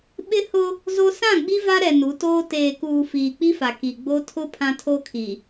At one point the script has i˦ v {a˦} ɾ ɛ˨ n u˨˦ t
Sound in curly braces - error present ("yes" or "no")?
no